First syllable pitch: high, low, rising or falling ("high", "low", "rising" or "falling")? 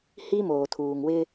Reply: high